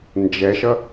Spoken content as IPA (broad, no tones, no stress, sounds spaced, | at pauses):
n d͡ʒ ɛ ʃ ʌ